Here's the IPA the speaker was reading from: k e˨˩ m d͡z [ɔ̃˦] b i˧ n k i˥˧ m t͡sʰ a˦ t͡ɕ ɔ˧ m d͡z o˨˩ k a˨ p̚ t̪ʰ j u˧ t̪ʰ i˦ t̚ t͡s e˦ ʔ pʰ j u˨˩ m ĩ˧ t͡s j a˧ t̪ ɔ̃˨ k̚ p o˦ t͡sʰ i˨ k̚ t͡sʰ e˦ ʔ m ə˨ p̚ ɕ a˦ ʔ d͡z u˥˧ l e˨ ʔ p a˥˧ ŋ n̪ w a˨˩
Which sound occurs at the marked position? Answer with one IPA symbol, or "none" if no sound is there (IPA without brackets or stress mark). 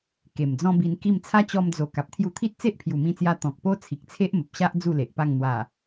ɔ̃˦